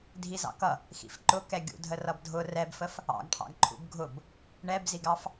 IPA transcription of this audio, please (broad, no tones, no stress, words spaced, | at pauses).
dʱizɑ̰kʌ | xḭfǃʊ kɛɡʲṵdʱə rʌbdʱʊ rɛbfəf | ɑ̰ɡʈʰɑ̰ɡǃʰṵb ɡʱʊb | ɳɛbziɡɑf